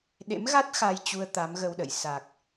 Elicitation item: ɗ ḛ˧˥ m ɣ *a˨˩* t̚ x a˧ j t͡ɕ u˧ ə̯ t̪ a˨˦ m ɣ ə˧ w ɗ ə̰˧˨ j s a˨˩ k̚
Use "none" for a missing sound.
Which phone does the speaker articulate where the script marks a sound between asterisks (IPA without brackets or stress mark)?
a˦˥